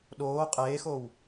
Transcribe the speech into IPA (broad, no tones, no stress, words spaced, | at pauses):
ɗoː qʼeːxow